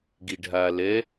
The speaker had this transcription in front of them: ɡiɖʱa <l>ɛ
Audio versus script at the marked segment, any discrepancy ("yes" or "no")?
no